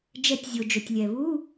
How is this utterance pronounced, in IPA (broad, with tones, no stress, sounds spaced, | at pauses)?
d͡ʒ ɛ˨˩˦ tʲ zʲ o˩ d͡ʒ o˩ tʲ lʲ ɛ˩ β u˧˥˧